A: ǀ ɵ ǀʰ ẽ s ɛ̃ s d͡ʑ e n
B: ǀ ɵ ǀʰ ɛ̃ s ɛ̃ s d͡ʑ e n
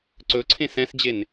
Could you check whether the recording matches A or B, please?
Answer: A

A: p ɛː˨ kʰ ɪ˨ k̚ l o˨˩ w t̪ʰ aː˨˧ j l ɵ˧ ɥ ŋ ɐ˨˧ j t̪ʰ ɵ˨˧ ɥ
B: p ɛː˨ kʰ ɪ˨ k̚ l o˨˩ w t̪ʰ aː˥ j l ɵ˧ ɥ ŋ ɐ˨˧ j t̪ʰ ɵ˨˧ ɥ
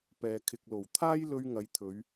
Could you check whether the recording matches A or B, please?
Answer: B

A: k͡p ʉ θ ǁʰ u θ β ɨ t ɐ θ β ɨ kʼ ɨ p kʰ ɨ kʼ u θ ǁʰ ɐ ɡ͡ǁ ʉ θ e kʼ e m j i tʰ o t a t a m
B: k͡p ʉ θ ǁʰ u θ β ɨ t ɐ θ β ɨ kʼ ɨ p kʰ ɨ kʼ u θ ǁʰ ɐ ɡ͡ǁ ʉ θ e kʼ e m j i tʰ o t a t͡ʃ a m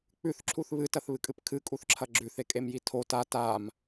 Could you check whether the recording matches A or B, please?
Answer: A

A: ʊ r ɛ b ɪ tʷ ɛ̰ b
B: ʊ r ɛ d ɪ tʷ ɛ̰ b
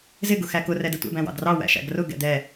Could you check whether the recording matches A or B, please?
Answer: B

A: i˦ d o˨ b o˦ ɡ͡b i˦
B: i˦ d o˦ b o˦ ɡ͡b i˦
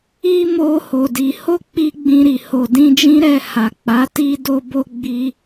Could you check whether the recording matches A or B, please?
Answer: B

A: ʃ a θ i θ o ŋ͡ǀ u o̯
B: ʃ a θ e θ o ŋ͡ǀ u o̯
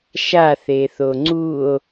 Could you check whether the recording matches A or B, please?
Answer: B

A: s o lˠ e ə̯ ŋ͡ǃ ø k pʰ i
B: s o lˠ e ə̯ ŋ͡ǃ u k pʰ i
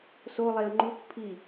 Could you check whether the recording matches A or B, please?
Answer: B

